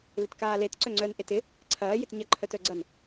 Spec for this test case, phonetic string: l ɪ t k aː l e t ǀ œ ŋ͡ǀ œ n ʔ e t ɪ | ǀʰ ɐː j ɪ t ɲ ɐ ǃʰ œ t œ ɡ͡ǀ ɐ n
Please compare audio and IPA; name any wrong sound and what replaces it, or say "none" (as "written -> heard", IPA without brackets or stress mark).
none